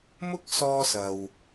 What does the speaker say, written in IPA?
m ʊ˥ k̚ s ɔː˧ s ɐ˨ w

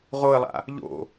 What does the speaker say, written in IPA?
ʁ o ə̯ lˠ a̰ | ʎ o̰

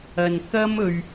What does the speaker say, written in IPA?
ɐ˨ n k ɐ˥ m ɵ˧ ɥ

